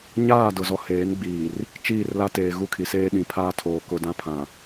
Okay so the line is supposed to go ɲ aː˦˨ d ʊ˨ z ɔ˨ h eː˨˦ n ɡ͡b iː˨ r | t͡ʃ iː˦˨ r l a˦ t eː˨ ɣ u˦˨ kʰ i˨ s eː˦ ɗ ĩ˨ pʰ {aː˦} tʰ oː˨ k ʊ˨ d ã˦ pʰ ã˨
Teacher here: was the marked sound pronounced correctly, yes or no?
yes